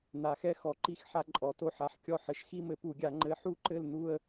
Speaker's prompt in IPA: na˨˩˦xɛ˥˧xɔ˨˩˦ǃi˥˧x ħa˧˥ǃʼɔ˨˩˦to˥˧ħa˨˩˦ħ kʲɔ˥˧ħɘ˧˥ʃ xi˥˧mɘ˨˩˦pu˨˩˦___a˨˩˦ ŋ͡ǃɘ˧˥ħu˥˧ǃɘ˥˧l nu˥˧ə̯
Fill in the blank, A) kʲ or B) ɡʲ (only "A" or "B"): B